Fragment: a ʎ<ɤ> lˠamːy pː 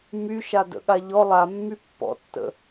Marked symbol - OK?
no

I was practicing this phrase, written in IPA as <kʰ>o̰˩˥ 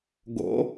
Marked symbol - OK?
no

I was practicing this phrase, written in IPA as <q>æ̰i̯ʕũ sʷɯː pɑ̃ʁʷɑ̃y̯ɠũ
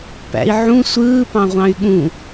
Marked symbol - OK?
no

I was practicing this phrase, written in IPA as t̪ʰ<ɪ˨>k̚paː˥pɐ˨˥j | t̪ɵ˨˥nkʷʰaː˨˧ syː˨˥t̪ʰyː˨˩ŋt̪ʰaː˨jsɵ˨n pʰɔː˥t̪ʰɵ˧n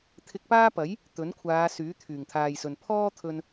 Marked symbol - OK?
no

